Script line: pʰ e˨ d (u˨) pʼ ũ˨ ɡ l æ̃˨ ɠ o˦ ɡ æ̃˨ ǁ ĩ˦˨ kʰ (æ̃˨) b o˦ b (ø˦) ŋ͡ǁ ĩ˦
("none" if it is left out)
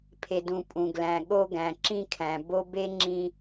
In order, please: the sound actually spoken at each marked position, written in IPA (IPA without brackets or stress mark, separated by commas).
ũ˨, æ̃˨, e˦